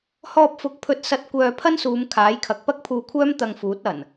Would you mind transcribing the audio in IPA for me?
h ɔː˧ p̚ f ʊ˨˥ k̚ pʰ ɵ˧ t̚ s ɐ˧ t̚ kʷ œː˧ pʰ ɐ˥ n s uː˨˧ m kʰ aː˨˥ j kʰ ɐ˨˥ k̚ p ɐ˥ k̚ pʰ uː˧ kʷʰ œː˥ m t̪ ɐ˧ ŋ f uː˨˥ t̚ ɐ˨˩ n

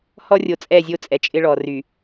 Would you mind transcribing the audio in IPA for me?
h ɔ˦ rʲ o˨ t͡sʼ ɛ˦˨ zʲ o˦˨ t͡sʼ ɛ˨ t͡ʃʼ ɪ˦ ɭ ɔ˨ r y˨

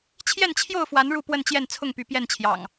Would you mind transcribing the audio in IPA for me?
t͡ɕʰ j ɛ˥˨ n t͡ɕʰ j o˥˨ ʊ̯ f w a˨˦ n ɻ u˥˨ p w ə˥˨ n t͡ɕ j ɛ˥˨ n t͡sʰ ʊ˥˨ ŋ p y˨˦ p j ɛ˥˨ n t͡ɕʰ j ɑ̰˨˩ ŋ

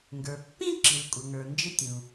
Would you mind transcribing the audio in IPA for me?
ŋ ɡ ə˞˩ pː ĩ˥ ǁ i˩ l kʷʼ ʌ˩ ŋ ə˞˩ n d͡ʒ ɪ˥ tʲ ũ˩

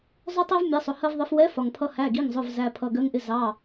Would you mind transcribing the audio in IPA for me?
zˤ ʊ˦ tˤ ɛ˦ v mʲ ɜ˨˥ sˤ ʊ˩˧˩ h ɜ˦ v ðˤ ɪ˨˥ f w ɛ˨˥ f ɒ˩ ŋ pʰ ʌ˨˥ h æ˩˧˩ ɡ i˩˧˩ ŋ zˤ ʊ˩˧˩ v z æ˩˧˩ pʰ ʌ˩˧˩ ɡ ɜ˨˥ ŋ ʔ ɪ˨˥ z ɑ˩˧˩

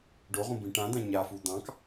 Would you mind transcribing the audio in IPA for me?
ɖ o ʁ ũ b ĩ ʈ ã d̪ ã ɲ a f u d̪ ɑ̃ k

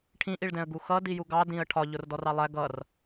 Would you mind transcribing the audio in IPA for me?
ʈʰ ĩ ʔ i ɭ d ɛ̃ ə̯ ɡ u x ʌ d i j u ɡ ɑ d ĩ ə̯ ʈʰ ɒ ʎ ʊ r d ɔ r ɑ lˠ æ ɡ ʌ r

